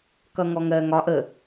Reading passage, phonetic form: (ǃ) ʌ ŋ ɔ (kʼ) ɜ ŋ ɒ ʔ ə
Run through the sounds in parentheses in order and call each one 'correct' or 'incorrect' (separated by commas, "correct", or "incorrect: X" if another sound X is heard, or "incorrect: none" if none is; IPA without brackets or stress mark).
incorrect: k, incorrect: ŋ